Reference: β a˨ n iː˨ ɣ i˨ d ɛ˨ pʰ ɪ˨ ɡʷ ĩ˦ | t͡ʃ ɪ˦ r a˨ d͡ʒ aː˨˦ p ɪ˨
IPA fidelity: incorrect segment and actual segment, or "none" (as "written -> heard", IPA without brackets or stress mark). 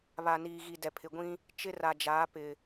none